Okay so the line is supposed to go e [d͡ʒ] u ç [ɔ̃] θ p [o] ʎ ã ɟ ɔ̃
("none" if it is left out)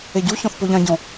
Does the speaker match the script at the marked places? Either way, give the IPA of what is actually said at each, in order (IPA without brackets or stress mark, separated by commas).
ɟ, ɔ̃, o